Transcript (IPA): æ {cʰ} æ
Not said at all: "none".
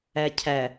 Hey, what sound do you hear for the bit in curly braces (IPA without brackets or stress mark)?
cʰ